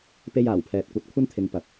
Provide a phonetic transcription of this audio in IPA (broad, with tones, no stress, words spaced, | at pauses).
pe˧jaː˨˩wpʰɛː˨t̚kʷɐ˨˥t̚ kʷʰɐ˥nt̪ʰɪ˨˧ŋ pɐ˨p̚